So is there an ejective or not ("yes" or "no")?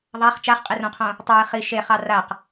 yes